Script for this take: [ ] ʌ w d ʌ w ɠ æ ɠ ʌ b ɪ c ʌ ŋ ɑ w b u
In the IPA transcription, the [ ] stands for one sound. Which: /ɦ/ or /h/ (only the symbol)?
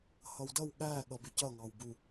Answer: h